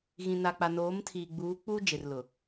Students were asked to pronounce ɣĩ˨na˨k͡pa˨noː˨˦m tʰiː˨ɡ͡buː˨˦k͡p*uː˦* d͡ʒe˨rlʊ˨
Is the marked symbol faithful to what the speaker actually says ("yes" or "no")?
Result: yes